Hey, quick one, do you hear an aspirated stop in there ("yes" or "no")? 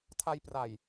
yes